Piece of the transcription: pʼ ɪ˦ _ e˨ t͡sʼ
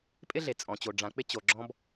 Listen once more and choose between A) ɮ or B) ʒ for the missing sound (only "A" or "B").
A